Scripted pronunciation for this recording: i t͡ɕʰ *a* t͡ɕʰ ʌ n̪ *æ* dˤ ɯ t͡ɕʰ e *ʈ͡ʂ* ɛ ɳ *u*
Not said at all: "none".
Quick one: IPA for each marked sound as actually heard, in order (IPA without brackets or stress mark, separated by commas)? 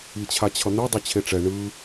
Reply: a, ɛ, ʈ͡ʂ, ɯ